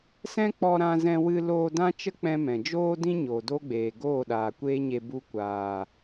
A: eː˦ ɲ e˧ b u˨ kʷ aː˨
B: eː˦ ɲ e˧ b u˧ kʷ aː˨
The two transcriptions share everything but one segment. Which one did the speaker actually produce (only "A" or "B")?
B